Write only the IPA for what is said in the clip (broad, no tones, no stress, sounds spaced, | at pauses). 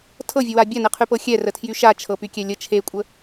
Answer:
tʰ ɤ vʲ ə w a bʲ a n e qʰ y p ɤ xʲ ɛ r ə tʰ j y ʃ a t͡ʃʰ ɤ p y kʲ ɛ lʲ ə t͡ʃʰ e kʷʼ ə